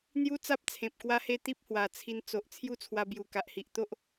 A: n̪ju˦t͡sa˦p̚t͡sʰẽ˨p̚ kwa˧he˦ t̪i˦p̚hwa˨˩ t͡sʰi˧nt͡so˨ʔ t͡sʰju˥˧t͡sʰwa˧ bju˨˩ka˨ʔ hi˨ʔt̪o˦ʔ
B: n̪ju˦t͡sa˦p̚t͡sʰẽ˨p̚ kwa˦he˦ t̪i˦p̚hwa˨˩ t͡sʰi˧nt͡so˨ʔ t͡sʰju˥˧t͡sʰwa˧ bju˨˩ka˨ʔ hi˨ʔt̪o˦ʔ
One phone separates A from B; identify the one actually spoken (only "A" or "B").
B